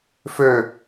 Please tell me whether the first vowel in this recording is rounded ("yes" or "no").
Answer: yes